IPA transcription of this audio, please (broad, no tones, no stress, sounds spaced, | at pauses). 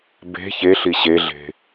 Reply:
b e̤ ç e ɬ i ɕ e ɮ e̤